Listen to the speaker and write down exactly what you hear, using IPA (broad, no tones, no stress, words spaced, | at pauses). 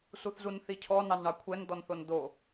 suθzunθicʰɔ nɑnɳɑkʷʰɛn d̪ɔnθond̪o